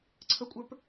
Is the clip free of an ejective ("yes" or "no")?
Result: no